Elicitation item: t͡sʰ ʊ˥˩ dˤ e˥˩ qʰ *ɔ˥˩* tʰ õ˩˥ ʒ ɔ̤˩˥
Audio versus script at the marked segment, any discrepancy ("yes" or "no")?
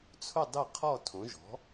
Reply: no